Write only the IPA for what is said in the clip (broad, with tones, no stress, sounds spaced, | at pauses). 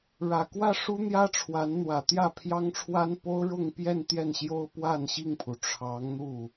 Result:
ɻ ä˨˩ k w ä˥˩ ʂ u˥ n̪ j ä˥ ʈ͡ʂʰ w a˧˥ n n̪ w ä˨˩ t̪ j ä˥˩ pʰ j ɑ˥ ŋ ʈ͡ʂʰ w a˥ n p o˥ ʊ̯ ɻ ʊ˥˧ ŋ p j ɛ˥˧ n t̪ j ɛ˥˩ n ɕ j o˥ ʊ̯ p w a˥˧ n ɕ i˥˩ ŋ pʰ u˩ ʈ͡ʂʰ ɑ˧˥ ŋ n̪ u˥˩